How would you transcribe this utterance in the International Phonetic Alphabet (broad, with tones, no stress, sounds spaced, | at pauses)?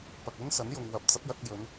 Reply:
p ɐ˨ k̚ ɵ˥ n s ɐ˨˥ n j ʊ˨ ŋ w ɐ˨˥ p̚ t͡s ɐ˨˥ p̚ j ɐ˧ t̚ j ɵ˨˧ n